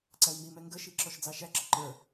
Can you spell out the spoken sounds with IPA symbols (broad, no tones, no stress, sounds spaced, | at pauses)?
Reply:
ǀ æ w m i m ɛ ŋ ɡ ə ʃ i ǁ ɔ ʃ d͡z ɑ ʃ æ ǁ ɪ ǃ ə˞